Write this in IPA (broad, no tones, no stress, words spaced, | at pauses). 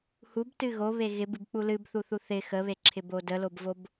hubtɨ ɣoβe ɣɪbɨbk͡pu lɨbθuθu θɪ xəβeǁʰɪbo dəlobvob